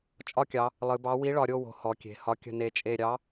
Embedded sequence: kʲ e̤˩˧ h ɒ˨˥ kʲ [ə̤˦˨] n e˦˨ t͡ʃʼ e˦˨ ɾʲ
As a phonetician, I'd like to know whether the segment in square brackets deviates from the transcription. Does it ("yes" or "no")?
no